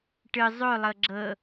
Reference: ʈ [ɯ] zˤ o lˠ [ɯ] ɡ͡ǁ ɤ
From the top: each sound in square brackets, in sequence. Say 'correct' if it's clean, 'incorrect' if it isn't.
correct, incorrect

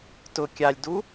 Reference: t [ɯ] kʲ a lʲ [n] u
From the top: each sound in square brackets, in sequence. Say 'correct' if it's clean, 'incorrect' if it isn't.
incorrect, incorrect

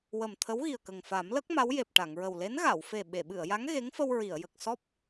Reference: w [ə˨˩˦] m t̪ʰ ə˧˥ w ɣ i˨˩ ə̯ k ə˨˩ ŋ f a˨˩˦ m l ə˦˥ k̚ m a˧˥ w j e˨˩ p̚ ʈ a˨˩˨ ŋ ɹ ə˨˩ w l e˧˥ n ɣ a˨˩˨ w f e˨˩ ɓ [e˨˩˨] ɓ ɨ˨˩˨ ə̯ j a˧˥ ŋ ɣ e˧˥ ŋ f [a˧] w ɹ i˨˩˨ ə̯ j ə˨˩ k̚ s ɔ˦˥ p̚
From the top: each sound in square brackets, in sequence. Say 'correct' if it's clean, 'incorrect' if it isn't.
incorrect, correct, incorrect

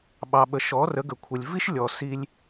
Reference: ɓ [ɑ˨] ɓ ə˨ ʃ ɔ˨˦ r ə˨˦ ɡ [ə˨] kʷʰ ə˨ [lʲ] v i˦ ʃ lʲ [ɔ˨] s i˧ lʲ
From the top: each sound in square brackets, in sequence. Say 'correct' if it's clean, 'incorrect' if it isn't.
correct, correct, correct, correct

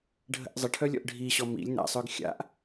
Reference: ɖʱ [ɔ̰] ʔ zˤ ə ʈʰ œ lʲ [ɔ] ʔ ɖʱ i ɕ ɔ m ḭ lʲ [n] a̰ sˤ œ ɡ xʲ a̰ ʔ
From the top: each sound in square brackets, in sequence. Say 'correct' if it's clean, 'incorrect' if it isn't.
incorrect, incorrect, correct

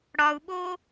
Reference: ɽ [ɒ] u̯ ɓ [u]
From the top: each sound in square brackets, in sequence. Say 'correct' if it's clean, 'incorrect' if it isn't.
correct, incorrect

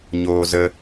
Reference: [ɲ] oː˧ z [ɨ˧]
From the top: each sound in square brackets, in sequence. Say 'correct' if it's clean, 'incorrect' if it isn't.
correct, incorrect

